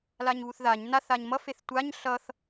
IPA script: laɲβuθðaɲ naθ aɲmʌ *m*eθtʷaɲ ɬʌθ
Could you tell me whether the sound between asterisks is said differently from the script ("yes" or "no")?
yes